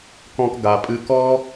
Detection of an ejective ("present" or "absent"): present